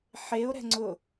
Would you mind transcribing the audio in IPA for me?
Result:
ħ e o̯ ɾ ɛ̤ ŋ͡ǀ ʊ

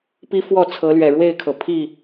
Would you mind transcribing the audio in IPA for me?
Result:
p i˦ f w ɔ˥˨ t͡sʰ ɤ˨˦ l ɥ ɛ˨˩ ɻ w e˥˨ ɪ̯ kʰ ɤ˩ pʰ i˥˨

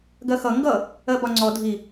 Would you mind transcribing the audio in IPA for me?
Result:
ɡ ɜ x ʌ ŋ ɡ ʌ | ɜ b ɒ ŋ͡ǀ ɔ dʱ i

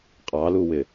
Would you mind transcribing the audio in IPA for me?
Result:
qʼ ɑ l u w ɪ

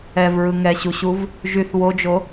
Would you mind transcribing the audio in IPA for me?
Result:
ɛ v ɹ ɯ ŋ ɛ ɕ u ɕ u v | ʒ y θ w o d͡ʒ o

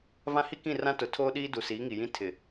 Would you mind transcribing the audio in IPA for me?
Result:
v ã˦ h i˦ k ĩ˦˨ r ã˦ t ʊ˨ tʰ oː˦ ɗ iː˦ d u˨ s iː˨˦ ŋ i˨ j ĩ˦ tʰ ɪ˨

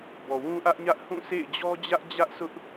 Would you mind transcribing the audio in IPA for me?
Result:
b ɔ˨ w ũ˦ ʔ ä˦ ʔ ɲ ä˦ ʔ h ũ˦˨ sʰ ḛ˦˨ ɪ̯ d͡ʑ ɔ˦ d͡ʑ ä˦ ʔ d͡ʑ ä˦ ʔ s ʊ˦ ʔ

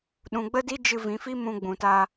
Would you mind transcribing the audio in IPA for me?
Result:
ɗ ũ˨ ɡ͡b ə˦ d i˦ d͡ʒ ɨ˧ v ĩ˨˦ f i˦ m ũ˧ ɡ͡b ũ˨ t a˧

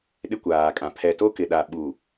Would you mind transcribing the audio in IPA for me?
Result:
ɗ ɪ˦ kʷ aː˨ kʼ ã˨ pʰ ɛ˨ t o˦ k ɪ˨ ɗ a˨ ɓ u˨

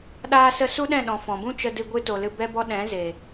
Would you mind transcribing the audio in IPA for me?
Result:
ɗ aː˦ s ə˦ s u˦ ɗ ɛ̃˦˨ ɗ ɔ̃˨ f ɔ̃˨ b ũ˦ t͡ʃ ə˧ d ɨ˧ ɡʷ ɨ˦ t o˧ l ɨ˦ b ɛ˦ b ɔ˦ ɗ ɛ̃˨˦ z e˨

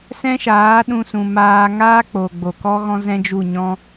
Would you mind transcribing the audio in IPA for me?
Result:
s ɛ̃˦ ʃ aː˨˦ ɗ ũ˧ s ũ˨ m aː˧ ŋ aː˦ k͡p o˨ ɡ͡b o˨ k ɔ˦ ɣ ɔ̃˦ z ɛ̃˦ d͡ʒ u˦˨ ɲ ɔ̃˦

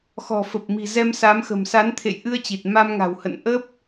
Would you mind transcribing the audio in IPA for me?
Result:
x ɔ̤˨˩ f ə˨˩ p̚ m i̤˨˩ z ɛ˧ m s a˨˦ m x ə̤˨˩ m s a˨˦ n t̪ʰ ḛ˧˨ j ʔ ɨ˧ ə̯ t͡ɕ i˨˩ t̚ m a˧ m ŋ a̤˨˩ w h ə̰˧˨ n ʔ ə˦˥ p̚

